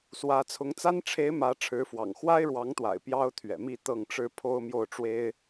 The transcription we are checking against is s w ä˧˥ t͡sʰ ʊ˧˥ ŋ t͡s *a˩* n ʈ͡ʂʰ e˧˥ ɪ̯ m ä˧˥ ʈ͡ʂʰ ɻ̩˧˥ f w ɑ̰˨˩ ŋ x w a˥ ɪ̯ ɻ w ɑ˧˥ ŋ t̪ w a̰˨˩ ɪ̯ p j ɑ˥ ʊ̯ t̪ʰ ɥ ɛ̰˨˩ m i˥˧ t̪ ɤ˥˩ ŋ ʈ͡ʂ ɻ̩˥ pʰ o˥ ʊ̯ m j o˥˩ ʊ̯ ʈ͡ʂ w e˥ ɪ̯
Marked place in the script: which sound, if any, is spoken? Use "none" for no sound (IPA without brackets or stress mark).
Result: a˥